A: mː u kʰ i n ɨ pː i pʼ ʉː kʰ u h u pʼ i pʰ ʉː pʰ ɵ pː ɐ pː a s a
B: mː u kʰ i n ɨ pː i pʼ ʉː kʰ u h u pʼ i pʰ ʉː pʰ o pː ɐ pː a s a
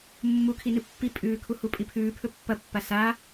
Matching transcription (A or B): A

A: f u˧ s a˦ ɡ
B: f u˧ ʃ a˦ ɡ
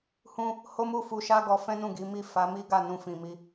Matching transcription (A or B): B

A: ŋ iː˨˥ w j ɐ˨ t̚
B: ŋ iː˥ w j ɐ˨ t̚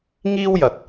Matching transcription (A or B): B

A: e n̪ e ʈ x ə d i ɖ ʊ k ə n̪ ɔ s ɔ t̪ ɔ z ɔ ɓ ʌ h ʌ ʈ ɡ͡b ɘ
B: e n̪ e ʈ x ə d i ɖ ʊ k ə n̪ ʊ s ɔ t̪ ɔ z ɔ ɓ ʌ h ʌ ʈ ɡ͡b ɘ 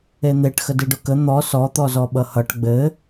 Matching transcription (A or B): A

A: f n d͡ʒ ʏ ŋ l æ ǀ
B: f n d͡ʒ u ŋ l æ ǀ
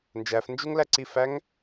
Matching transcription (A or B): B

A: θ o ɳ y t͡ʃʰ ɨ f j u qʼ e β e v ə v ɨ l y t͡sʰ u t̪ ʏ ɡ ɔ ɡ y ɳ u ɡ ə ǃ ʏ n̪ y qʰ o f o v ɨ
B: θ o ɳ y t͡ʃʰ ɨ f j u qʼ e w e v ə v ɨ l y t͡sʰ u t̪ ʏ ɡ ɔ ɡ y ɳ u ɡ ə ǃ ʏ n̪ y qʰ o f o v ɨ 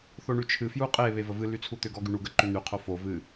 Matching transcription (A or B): A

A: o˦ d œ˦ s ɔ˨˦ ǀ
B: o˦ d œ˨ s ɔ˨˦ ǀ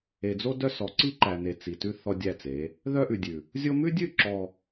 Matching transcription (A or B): A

